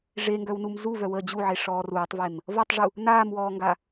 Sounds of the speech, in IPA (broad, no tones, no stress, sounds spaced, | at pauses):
ʐ e ŋ ɡ œ w n u m z u v œ w əː d͡ʑ u ʕ e ʂ ɔː r uː tˤ v e m | v ɔ tˤ ʐ u | n aː m w ɔː ŋ ɡ a